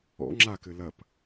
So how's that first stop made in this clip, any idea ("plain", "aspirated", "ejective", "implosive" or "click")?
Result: click